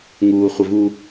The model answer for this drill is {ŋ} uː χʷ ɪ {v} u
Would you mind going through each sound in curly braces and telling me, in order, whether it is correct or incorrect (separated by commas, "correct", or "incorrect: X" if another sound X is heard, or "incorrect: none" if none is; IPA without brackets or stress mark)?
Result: correct, correct